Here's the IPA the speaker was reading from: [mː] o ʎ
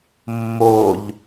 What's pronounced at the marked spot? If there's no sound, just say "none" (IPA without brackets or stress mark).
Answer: mː